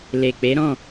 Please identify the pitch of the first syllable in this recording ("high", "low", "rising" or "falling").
low